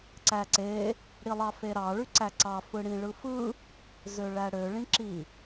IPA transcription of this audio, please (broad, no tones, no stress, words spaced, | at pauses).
ǀæǀe | ɽilˠɑfeɾɑ ɭyǀæǀɑ fɯɽĩɭɯfɯ | zøɭæɽø ɭĩǁi